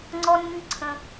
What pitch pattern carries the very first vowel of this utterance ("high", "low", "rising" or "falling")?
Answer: high